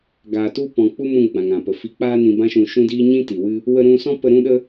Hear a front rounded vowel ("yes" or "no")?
no